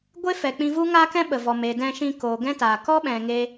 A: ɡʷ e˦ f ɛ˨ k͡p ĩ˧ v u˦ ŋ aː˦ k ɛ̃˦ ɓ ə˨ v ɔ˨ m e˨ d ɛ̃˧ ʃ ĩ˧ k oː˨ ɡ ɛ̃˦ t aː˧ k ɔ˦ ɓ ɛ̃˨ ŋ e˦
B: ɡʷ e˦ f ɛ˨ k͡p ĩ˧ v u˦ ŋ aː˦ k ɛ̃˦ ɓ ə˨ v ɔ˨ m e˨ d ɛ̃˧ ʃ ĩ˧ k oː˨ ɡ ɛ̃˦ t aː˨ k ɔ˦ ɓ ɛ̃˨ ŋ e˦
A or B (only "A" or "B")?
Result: B